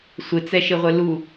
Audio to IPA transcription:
sʷ ɪ t͡s ɛ ʃ ɪ ʁʷ ɪ l u

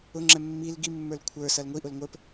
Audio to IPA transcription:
ʊ ŋ͡ǁ ɛ mː i l ɡ i mː ə˞ l kʷʰ ə˞ s ɐ l ŋʷ i ʔ ʊ l ŋʷ ə˞ p

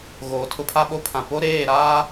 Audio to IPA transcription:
ɣ oː˨ tʰ ʊ˦ pʰ a˦ ɓ o˦ pʰ ã˨ p o˦ ɾ eː˦˨ ɾ aː˦

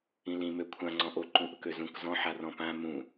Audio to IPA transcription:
ĩ l ĩ m ø kʷʰ ã ŋ͡ǀ ɔ̃ ʔ o ǃ ũ ʔ ʊ k ø z ũ k z ɔ̃ ħ a r ɔ̃ p ã m ũ

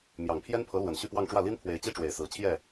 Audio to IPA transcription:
m j ɑ˨˩ ŋ pʰ j ɛ˥ n pʰ ɤ˧˥ l w ə˨˩ n ɕ y˥˧ p w ɑ˥˧ ŋ ʈ͡ʂ w ä˥˩ l i˥ n pʰ w e˧˥ ɪ̯ t͡ɕ i˥ ʈ͡ʂ w e˨˩ ɪ̯ s ɹ̩˧˥ t͡ɕʰ j ɛ˥˩

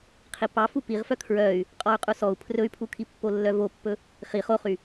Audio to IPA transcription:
qʰ i p ɑ f u p i ʁ f œ kʰ ɹ œ y̯ | qʼ ɔ y̯ qʼ u s ɔ u̯ pʰ r ɵ y̯ pʰ u kʰ i pː o lː œ v o pː ɵ | χ i χ o χ y

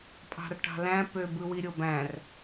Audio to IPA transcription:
pʼ ɑ̤ r ʈ ɑ̤ l æ̃ p ø b ɯ w i ɾʲ o b æ̃ r

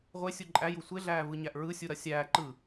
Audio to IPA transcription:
ʁʷ e sʲ u ǃʼ æ j u sʷ e ɮ æː v ɯ ɲ æ ʔ ɹ ɯ sʲ u ɾ ɐ sʲ æː ǃ ɯ

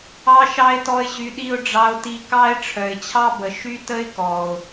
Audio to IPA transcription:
ɑ˥ ʃ ɑ˥ ɪ̯ t ɔ˦ ɪ̯ ʑ y˦ ɗ i˥ ʊ̯ ɖ͡ʐ ɑ˦ ʊ̯ t i˦ k ɑ˥ ɪ̯ ʈ͡ʂʰ œ˨ ɪ̯ t͡ɕʰ ɑ˥ b ə˨ ʃ y˦ t ə˥ ɪ̯ k ɔ˩ ʊ̯

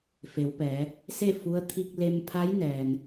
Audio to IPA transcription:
f e˩˧ w p ɛː˩˧ | s e˥˨ f u˧˥ ə̯ t̪ʰ i˧ k̚ l e˧ m pʰ a˧˥ j n ɛː˩ n

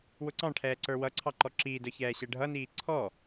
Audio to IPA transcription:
w ʊ ǀ ɑ̃ ʈʰ ɛː ǀ ə˞ w ʌ ǀʰ ɑ ǃ ɔ ǁ iː d ə˞ ç ɛː ɕ ɛ ɖʱ ʌ n iː ǀʰ ɔ

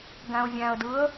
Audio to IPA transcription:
ɡ æ̃ ʊ̯ vʲ æ̃ ə̯ d ɯ ə̯

